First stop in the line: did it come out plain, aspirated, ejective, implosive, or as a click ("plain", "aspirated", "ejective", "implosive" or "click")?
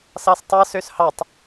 plain